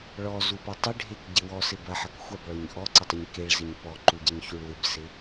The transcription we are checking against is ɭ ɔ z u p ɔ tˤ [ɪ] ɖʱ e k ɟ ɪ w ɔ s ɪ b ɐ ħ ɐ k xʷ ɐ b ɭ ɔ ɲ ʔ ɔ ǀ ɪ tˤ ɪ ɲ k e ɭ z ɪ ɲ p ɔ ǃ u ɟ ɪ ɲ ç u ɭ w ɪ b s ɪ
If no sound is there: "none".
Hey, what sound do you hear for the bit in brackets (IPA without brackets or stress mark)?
ɪ